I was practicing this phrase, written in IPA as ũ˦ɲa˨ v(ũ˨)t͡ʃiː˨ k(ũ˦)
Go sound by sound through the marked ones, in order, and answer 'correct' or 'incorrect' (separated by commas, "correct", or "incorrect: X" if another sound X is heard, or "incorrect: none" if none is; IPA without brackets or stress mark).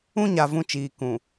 incorrect: ũ˦, incorrect: ũ˨